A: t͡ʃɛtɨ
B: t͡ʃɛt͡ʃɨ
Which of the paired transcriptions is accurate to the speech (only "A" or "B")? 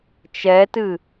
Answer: A